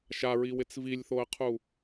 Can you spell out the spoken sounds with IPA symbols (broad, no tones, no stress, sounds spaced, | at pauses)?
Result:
ʃ a ɹ i w ɪ t͡s v i lʲ θ o ə̯ qʰ u